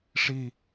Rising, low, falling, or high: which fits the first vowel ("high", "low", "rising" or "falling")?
low